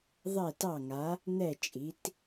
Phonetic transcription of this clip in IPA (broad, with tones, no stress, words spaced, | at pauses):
ðˤɛ˦˨tɑ˦˨ŋa˨˦ | n̪ɛ˦˨t͡ʃʼi˨˦t